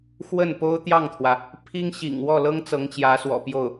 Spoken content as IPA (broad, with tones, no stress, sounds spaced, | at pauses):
x w ə˥˩ n p o˥ ʊ̯ t̪ j ɑ˥˩ ŋ t̪ʰ w ä˩ | pʰ i˥ ŋ ɕ ḭ˨˩ ŋ w ɔ˥˩ l ɤ˥ ŋ t͡s ɤ˧˥ ŋ t͡ɕ j ä˧˥ s w ɔ̰˨˩ p j o˥˩ ʊ̯